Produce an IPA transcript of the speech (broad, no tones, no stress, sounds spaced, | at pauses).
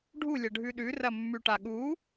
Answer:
ɖʱ u lʲ ɐ ɖʱ ʉ ɗ ʉ r ɐ mː ʉ ʈ a ɠ u